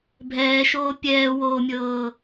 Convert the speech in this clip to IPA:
bʱ ɛː ʃ oː pʲ ɛː w oː mʲ ɤː

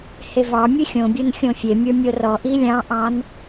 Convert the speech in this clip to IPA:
h e v ɑ mʲ ɨ xʲ õ bʲ o n xʲ õ fʲ e mʲ ə˞ mʲ o r ɔ ʔ i lʲ ɑ̃ ʔ ɑ̃ n

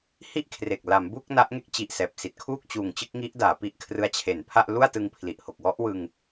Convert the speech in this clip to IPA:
h i˥˩ ʔ kʰ r e˨˩ k̚ l a˩˦ m b uː˥˩ k̚ n a˦˥ ʔ ŋ e˥˩ k̚ t͡ɕ i˨˩ ʔ s ɛː˨˩ p̚ s i˨˩ t̚ kʰ uː˥˩ k̚ t͡ɕ uː˨˩ ŋ t͡ɕ ɯ˥˩ k̚ ŋ i˦˥ ʔ d aː˩˦ p i˦˥ ʔ kʰ r ɯ˦˥ a̯ t͡ɕʰ e˩˦ n pʰ a˥˩ ʔ l u˥˩ a̯ t ɯ˧ ŋ pʰ l i˨˩ ʔ h o˨˩ k̚ w ɔ˦˥ ʔ w ɯ˧ ŋ

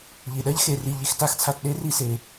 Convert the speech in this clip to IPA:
ʎ i˨ ɗ ɜ˦ ʎ x e˧ r i˧ ʎ i˧ x t a˦ x t͡sʰ a˧ t ɗ e˦ r i˧ s e˨

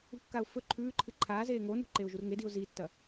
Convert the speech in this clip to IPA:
ṳ kː a ʊ̯ f ɵ ǃʰ ʉː ǃʰ ɨ ǃʰ aː z eː ŋ o n ṳ ǃ e ʊ̯ ʒ u r ŋ e d i ʊ̯ z i tː ɐ

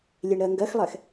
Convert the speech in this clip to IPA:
lʲ e ɳ ɾ ɜ ŋ ɡ ɜ x lˠ ɛ x

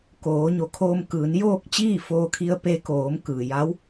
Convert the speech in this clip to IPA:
k oː˩˧ ɲ o˩˧ kʰ oː˧ m k ɯː˩˧ n j oː˥˨ k̚ t͡ɕ iː˥˨ f oː˧ kʰ i˧ ə̯ p e˧ k oː˩˧ m k ɯː˩ j a˧˥ w

